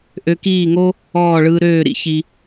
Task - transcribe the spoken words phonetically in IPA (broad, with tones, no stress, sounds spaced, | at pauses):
ʔ ø˧ k iː˦˨ ŋ o˦ | ɔː˦˨ ɭ ɯː˧ ɾ øː˦˨ ɾ ḭ˧ ç i˧